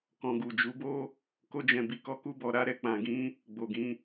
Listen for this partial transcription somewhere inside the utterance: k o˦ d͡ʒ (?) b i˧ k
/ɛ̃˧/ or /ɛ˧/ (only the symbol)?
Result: ɛ̃˧